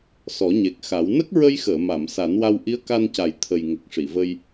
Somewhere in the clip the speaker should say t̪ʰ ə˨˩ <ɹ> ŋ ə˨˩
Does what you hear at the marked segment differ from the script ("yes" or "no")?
yes